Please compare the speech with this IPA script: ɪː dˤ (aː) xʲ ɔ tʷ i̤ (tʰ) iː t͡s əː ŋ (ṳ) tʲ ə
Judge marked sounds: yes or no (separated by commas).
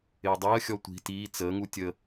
no, no, no